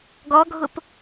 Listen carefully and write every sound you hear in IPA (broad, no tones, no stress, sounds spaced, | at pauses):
ɡ ɔ ɡʱ ʊ p